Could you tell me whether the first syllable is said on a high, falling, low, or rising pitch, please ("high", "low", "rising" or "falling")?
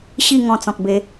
falling